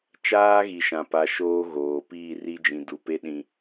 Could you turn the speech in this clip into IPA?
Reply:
t͡ʃ aː˦ ɣ i˨ ʃ ã˨ p a˨ ʃ oː˦ ɣ oː˨ p iː˦˨ r i˦ d͡ʒ ĩ˨ d u˨ p e˦ ɗ ĩ˨

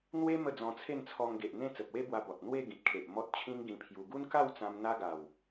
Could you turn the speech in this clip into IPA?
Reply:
n̪ w e˦ m ə˥˧ d͡z ɔ̃˧ t͡sʰ e˥˧ n t͡sʰ ɔ˧ ŋ ɡ e˨ ʔ n̪ ẽ˥˧ t͡s ə˨ p̚ w e˦ b w a˧ b ɔ˨ t̚ n̪ w e˥˧ ɡ ĩ˨ t̚ kʰ e˨ ʔ m ɔ˦ t̚ t͡ɕʰ ĩ˦ ŋ ɡ ĩ˧ pʰ j u˧ ɡ u˦ n k a˥˧ w t͡s ã˧ m n̪ a˧ ɡ a˨˩ w

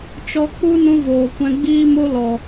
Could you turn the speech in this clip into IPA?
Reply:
t͡ʃ ɔ˧ k͡p u˦ n ũ˦ v oː˨ kʷ ɛ̃˧ ɡ͡b iː˦ m o˦ l ɔ˨

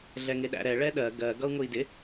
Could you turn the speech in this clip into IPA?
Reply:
ɮ ɛ ŋ ɪ ɗ æ̰ ɾ ɛ ɭ ɛ ɗ ɜ ɡ ɜ ɡ ʌ u̯ ŋ ʊ i̯ d ɪ

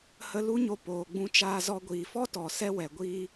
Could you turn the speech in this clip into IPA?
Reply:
h ə˧ l u˦ ɲ o˧ p oː˨ ɡ͡b ũ˧ t͡ʃ aː˧ z ɔ˧ ɡʷ iː˨ f ɔ˦ t ɔ˨ s ɛ˦ w ɛ˨ ɡʷ iː˦

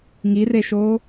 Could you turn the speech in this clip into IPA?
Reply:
ŋ i r e ʃ oː

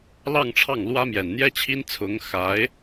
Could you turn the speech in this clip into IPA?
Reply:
l ɑ˥˧ ŋ ʈ͡ʂʰ ɑ˥˩ ŋ l w ä˥ m j ɛ˨˩ n n̪ j ɛ˥ t͡ɕʰ i˥ n t͡sʰ ʊ˧˥ ŋ x a˧˥ ɪ̯

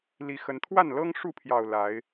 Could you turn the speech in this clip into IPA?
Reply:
l i˨˦ x ə˨˦ n t̪ʰ w a˥˨ n l ɤ˦ ŋ ʂ u˥˨ pʰ j ɑ˨˩ ʊ̯ l a˨˦ ɪ̯

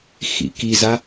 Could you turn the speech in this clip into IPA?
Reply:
x ḭ k i z a

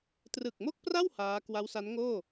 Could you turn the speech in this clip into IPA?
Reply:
t r ɯ˨˩ k̚ m o˥˩ k̚ p r a˥˩ w h aː˦˥ k w a˦˥ w s a˦˥ n ŋ oː˥˩

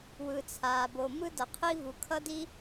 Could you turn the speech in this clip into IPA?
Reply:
w ɯ˨ t͡sʰ aː˨ b o˨ m ɯ˦ d ʌ˨ qʰ i˦ v u˨ kʰ ʌ˦ d i˦

